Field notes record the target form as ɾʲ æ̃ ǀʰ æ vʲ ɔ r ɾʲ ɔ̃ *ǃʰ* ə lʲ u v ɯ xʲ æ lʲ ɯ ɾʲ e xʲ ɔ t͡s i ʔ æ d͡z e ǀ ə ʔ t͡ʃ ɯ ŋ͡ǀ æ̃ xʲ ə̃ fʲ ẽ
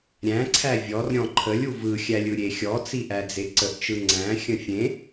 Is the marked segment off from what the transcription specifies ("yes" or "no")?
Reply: no